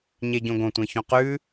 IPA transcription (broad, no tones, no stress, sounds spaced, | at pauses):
ɲ e ɟ õ ɡ õ tʷ ẽ ç õ q ʉ